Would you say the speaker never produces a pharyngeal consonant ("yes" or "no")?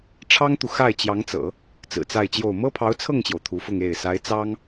yes